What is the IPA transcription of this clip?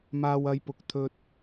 m aː˧ w ɐ˧ j p ʊ˨ k̚ t̪ʰ ɵ˧ t̚

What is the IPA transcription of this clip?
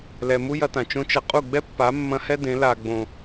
l ɛ˨ m u˦ j ɐ˧ t ã˨ t͡ʃ õ˦ t͡ʃ ɐ˧ qʼ u˦˨ ɡ͡b ɛ˦ pː a˨˦ mː ɐ̃˧ h ɛ˦ d ẽ˨˦ l a˨ ɡ͡b õ˨

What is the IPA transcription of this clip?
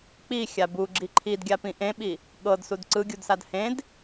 k͡p i xʲ a b u ɡ͡ǁ i ǃʰ i d ɡʲ a p ĩ ʔ ẽ ɓ i | ɠ ɤ d s u d ǀ ɯ ɡʲ u d s a d h ẽ d

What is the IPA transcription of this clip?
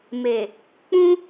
m e˨ | k͡p ũ˦

